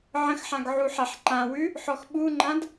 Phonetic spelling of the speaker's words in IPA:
ʕ ə̃ x ħ ã ɡ ʕ u ħ a ħ ǃ ã w ʉ | ħ ɔ x ɓ u ŋ͡ǃ ã d

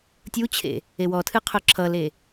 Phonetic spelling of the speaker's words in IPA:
tʲ u t͡ɕʰ ḛ | e w ɔ tʰ ɨ qʰ ʊ ǁʰ ʌ l e

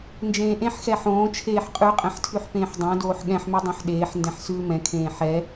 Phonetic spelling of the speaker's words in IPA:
n d͡ʒ ẽː ʔ ẽ ħ x ɛ ħ õː t͡ʃʰ eː ħ qʼ ʉ qʼ ɛ̃ ħ tʰ ʉ ħ p ẽː ħ dˤ õ d oː ħ ɠ ɛ̃ ħ m ʉ dˤ õ ħ ɗ eː ħ n d ɛ̃ ħ s ʉː m ɛ̃ kʰ ẽː ħ ɛ

